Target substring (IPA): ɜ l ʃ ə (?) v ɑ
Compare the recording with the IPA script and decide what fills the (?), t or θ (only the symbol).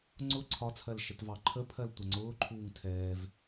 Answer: t